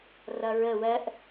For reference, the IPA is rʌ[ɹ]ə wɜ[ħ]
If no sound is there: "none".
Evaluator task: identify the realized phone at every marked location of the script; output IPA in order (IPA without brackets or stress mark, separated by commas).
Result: ɹ, ʔ